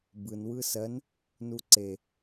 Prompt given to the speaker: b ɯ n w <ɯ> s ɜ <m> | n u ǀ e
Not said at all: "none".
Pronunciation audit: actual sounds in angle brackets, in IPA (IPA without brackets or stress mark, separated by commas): ɯ, n